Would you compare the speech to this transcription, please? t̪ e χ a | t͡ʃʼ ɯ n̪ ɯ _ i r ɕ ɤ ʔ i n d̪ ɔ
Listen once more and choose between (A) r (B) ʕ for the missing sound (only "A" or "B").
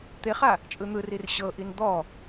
A